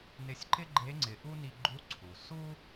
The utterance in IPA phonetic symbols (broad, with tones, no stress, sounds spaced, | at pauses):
n ɪ˧ sʲ ǃ ɪ˥ ɡ͡ǃ e˧˥ ŋ͡ǀ ɪ˩˧ ʔ u˥ n i˧ ɡ͡ǃ u˧˥ ǀʰ u˩ s u˥